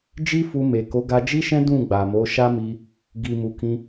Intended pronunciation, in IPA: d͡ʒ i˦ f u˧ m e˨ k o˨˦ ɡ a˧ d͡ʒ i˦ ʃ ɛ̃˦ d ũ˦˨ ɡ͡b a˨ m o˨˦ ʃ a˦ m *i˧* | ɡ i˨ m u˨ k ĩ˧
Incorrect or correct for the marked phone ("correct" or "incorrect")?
correct